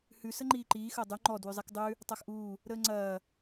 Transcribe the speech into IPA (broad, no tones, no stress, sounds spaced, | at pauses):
h ʉ s ə ŋ͡ǃ iː ǃ iː x əː dˤ ʉ ŋ͡ǃ ɔ d w ʉ zˤ i k dˤ ʉ | tˤ a x ʔ uː | ɾ əː ŋ͡ǀ ɐː